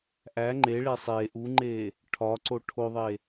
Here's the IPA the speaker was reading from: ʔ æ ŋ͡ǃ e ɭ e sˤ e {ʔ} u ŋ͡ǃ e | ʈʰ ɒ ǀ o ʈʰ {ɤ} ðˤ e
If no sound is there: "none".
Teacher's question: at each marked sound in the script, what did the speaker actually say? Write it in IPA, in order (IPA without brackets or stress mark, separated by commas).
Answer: ʔ, o